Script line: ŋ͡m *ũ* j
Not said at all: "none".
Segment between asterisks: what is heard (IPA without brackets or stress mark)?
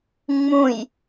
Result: ũ